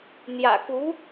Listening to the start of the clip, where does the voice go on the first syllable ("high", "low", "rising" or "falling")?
low